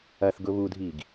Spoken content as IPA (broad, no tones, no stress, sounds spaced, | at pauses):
ɐ θ ɡ ʊ β u dʱ iː ɡ